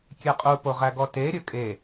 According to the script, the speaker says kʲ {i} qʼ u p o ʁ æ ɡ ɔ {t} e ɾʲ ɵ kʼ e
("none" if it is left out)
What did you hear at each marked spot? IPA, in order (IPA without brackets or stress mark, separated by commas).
e, t